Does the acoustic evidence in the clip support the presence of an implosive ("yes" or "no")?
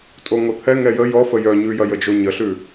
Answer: no